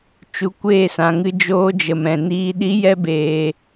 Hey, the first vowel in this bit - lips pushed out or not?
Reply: yes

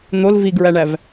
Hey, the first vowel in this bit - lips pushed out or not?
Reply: yes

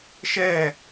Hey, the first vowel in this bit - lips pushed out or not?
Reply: no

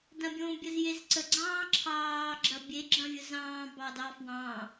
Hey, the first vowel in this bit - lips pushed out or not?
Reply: no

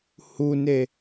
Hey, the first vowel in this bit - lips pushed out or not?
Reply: yes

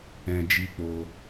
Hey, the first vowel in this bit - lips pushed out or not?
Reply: no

